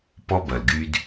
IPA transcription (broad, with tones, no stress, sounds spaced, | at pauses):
p ɔ˦ b ɐ˨ l ɡ y˦ d